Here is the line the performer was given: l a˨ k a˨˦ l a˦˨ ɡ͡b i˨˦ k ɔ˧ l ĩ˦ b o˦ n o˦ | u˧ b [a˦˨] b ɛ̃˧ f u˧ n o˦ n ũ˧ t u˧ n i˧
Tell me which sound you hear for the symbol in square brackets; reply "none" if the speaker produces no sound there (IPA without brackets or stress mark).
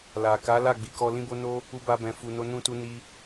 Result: a˧